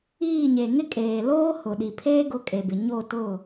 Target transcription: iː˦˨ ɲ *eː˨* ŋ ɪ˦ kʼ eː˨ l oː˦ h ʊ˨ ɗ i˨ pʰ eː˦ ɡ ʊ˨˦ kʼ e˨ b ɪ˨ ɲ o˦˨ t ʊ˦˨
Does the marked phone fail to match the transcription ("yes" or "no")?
yes